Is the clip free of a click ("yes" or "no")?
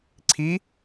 no